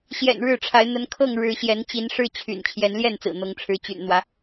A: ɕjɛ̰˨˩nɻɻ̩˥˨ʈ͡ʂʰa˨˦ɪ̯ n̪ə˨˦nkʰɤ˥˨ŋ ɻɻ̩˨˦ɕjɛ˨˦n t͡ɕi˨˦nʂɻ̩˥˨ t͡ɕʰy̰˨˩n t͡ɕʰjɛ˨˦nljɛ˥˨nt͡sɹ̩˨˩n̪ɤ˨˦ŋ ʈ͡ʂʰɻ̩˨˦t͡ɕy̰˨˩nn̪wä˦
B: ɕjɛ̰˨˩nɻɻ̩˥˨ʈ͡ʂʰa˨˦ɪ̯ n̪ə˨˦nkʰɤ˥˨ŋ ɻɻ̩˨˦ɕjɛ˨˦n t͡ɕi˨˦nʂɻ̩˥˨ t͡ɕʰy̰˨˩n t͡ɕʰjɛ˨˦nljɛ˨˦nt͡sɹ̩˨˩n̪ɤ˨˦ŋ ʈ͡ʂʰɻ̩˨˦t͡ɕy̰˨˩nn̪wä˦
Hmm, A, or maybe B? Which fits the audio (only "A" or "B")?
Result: A